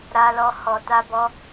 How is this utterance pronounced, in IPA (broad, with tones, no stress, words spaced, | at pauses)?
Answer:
ɾa˦lɔ˦ hɔ˧ta˦bɔ˦